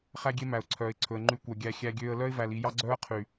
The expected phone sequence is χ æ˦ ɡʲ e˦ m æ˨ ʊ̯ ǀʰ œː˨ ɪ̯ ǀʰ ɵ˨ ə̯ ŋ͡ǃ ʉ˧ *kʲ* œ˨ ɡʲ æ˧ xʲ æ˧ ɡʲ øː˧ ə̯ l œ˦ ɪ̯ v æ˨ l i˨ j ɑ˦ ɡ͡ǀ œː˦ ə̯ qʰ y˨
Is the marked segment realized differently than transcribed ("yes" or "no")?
yes